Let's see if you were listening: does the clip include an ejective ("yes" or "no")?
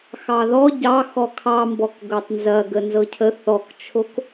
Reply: no